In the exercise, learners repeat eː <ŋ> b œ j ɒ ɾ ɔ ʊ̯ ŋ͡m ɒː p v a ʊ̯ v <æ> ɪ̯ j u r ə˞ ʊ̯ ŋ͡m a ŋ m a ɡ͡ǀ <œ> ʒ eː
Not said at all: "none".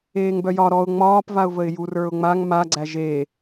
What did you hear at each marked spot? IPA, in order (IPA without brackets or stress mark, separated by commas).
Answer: ŋ, ə, æ